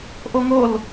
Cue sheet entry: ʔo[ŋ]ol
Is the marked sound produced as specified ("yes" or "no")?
yes